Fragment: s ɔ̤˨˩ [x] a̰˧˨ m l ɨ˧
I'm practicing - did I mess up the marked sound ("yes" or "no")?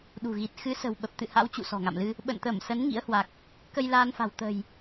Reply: yes